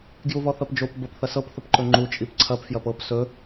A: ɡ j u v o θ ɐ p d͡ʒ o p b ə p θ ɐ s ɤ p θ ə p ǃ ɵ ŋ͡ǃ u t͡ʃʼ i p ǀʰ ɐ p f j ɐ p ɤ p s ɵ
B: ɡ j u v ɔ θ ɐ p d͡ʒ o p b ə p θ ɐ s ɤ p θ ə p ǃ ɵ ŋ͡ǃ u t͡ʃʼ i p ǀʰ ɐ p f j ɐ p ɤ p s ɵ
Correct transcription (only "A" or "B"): B